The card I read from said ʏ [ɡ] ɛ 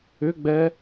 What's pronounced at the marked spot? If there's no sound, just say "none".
ɡ͡b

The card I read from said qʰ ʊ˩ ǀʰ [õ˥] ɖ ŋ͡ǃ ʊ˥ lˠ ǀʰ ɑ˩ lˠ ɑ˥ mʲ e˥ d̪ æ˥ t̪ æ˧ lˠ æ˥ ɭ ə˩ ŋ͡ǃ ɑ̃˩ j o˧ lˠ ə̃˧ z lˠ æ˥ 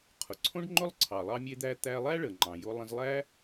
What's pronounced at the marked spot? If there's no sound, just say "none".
õ˥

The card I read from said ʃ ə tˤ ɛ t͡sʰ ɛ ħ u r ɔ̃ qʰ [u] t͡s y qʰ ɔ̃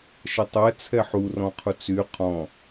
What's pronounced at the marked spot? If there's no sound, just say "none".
u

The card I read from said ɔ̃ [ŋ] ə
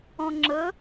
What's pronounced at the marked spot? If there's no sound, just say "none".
ŋ͡ǁ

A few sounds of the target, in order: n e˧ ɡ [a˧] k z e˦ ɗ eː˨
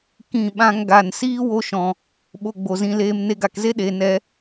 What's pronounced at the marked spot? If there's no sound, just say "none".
a˨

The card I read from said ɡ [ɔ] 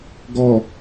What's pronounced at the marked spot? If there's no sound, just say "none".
ɔ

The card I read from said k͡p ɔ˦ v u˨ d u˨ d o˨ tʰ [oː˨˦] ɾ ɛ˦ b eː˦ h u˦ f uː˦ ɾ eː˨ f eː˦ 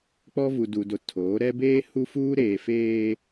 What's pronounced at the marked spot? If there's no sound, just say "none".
oː˨˦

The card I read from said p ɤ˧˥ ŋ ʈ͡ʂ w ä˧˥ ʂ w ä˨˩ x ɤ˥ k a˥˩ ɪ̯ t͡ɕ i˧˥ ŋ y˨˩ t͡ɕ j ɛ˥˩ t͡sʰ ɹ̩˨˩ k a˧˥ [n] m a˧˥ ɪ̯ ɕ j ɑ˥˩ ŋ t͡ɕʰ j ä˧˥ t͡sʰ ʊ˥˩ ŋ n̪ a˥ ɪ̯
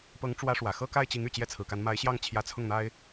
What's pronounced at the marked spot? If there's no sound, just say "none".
n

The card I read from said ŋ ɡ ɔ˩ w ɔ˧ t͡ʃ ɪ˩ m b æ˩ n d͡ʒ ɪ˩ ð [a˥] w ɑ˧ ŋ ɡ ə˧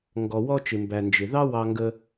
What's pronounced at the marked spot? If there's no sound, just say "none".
ɑ˥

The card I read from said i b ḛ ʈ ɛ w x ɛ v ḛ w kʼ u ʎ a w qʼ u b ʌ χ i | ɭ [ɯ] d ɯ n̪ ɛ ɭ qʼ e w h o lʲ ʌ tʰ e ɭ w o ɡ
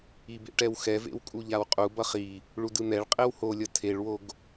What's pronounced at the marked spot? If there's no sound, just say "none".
u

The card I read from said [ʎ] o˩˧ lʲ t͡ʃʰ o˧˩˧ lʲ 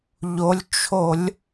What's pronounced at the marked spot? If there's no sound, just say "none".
ʎ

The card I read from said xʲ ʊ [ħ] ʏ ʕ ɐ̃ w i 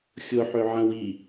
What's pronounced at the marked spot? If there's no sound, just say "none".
ħ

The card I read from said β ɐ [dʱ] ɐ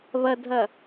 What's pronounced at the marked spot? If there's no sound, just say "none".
dʱ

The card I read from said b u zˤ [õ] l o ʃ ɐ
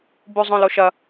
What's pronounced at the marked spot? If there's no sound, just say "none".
õ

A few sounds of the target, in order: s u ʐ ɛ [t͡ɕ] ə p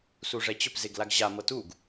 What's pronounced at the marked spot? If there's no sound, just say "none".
t͡ɕ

